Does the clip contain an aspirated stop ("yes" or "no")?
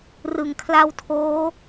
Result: yes